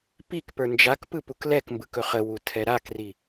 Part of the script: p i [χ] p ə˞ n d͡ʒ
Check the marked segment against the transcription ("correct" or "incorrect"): incorrect